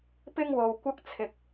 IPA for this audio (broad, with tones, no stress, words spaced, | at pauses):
pɪ˥ŋwo˧wkʷɐ˥k̚ t͡sʰɪ˧k̚